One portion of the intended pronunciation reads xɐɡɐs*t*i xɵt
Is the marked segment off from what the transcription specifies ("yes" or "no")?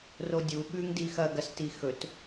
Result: no